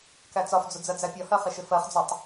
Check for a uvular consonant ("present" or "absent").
present